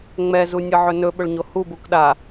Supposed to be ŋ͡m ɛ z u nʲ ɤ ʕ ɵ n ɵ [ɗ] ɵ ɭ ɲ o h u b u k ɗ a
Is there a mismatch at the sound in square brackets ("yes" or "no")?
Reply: yes